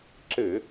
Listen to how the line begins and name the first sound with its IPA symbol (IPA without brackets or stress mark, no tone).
ǁ